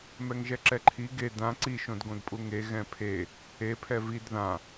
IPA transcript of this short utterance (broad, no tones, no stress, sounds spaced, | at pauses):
m ɛ ŋ ʒ ɛ ǁ ɛ ǃʰ i ɡ e d ã ǀ i ʃ õ d ɡ õ d pʼ u ŋ e ɣ ɛ̃ pʰ e | e pʰ ɛ v i d ð ã